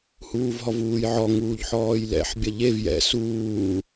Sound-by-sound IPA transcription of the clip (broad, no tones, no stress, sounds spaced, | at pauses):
h uː v ɦ ɔ v uː j ʕ ɔ ŋ uː ʎ ħ ɔː j l ɛ̰ ħ bʲ ɐ ʎ e v j ɛ̰ s uː